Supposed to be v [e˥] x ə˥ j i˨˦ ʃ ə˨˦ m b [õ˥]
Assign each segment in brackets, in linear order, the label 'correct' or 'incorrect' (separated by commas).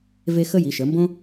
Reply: correct, correct